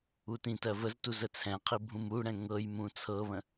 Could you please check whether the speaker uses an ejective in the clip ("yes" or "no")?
no